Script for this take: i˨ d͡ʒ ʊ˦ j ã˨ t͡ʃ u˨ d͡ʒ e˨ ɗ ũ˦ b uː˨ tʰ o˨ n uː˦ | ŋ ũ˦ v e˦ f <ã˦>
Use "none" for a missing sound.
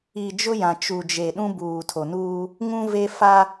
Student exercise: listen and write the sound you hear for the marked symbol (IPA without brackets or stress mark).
a˦